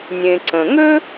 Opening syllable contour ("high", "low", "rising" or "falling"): low